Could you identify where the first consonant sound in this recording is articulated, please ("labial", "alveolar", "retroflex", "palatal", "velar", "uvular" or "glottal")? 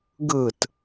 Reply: velar